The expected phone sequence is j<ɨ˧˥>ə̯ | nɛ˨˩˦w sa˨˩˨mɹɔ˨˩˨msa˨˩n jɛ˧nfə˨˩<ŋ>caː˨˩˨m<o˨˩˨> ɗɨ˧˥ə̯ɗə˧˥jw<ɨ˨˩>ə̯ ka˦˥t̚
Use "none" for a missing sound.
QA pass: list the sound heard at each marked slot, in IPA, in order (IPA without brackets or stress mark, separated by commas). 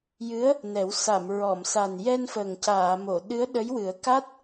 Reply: ɨ˧˥, ŋ, o˨˩˨, ɨ˨˩˦